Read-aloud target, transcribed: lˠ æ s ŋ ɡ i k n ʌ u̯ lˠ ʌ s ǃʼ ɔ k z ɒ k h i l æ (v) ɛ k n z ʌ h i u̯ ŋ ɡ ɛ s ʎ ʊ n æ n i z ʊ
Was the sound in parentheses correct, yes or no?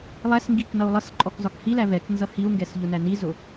yes